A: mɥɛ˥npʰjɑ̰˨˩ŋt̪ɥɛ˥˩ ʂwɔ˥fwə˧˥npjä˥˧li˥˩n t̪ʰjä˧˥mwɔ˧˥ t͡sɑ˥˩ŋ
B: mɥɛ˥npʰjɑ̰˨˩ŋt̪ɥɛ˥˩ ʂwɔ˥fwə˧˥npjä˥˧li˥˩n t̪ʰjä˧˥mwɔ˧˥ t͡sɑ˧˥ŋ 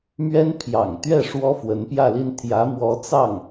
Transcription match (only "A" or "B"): A